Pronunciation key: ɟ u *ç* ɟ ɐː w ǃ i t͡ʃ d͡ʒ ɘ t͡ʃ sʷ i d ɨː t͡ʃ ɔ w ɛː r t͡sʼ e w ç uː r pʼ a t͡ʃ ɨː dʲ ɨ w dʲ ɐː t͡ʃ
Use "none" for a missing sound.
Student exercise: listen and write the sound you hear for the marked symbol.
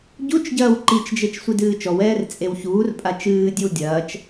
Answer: t͡ʃ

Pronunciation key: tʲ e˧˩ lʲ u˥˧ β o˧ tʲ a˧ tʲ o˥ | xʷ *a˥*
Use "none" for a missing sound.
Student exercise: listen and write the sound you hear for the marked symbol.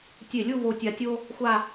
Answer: a˥˧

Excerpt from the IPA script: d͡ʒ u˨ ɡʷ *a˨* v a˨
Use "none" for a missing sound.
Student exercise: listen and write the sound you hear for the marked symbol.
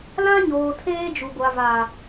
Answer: a˨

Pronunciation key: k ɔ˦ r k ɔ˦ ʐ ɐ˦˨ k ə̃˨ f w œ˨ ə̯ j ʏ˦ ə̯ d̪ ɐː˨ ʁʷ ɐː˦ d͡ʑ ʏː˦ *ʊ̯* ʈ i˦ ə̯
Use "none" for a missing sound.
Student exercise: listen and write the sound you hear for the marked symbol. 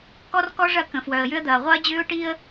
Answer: ʊ̯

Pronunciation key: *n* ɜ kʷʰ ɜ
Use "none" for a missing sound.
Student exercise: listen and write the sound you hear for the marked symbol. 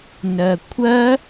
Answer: n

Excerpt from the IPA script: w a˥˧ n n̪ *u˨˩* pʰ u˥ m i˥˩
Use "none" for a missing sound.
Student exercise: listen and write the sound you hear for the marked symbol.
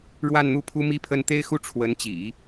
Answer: u˥˩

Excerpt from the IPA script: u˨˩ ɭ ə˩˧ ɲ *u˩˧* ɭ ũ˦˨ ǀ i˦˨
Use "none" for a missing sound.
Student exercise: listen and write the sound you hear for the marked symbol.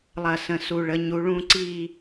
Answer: u˩˧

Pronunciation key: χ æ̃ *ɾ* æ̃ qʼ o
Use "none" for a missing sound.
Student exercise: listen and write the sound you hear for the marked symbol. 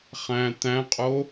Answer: t̪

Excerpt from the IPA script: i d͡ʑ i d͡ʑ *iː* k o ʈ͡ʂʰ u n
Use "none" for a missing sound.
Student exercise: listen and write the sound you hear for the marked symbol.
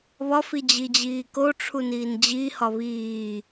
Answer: iː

